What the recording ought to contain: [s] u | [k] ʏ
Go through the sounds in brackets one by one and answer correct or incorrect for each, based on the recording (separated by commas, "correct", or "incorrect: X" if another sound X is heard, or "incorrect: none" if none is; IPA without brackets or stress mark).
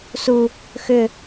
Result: correct, incorrect: x